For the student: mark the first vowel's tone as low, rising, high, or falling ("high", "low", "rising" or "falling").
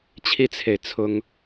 high